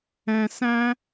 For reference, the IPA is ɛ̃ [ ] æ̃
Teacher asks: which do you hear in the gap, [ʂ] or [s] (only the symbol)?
s